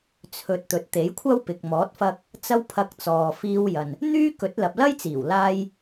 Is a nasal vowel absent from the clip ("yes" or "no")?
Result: yes